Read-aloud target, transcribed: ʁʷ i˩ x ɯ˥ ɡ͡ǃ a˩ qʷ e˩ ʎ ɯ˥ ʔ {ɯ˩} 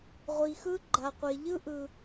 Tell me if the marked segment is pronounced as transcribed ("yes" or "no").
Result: yes